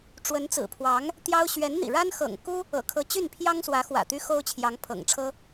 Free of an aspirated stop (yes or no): no